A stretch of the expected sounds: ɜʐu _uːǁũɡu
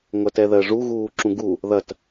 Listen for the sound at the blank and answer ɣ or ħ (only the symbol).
ɣ